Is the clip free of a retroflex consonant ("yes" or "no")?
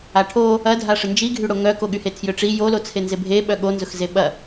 no